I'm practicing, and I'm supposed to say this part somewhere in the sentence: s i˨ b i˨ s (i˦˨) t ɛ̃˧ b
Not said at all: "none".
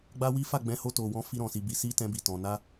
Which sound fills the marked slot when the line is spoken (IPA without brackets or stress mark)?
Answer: i˧